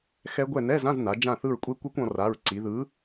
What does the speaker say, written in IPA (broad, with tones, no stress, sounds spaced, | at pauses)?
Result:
x ɛ˦˥ ɡʷ ɛ˦˨ n ɛ˧˥˧ z ã˧˥˧ z n a˩˧ d͡ʒ ã˦˨ θ ɯ˦˨ ɹ kʷʼ e˦˥ kʷ e˦˥ kʷ ɔ̃˩˧ r a˩˧˩ ɹ ǀ i˩˧ ð ɯ˨˥